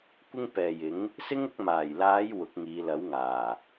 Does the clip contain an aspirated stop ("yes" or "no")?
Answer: no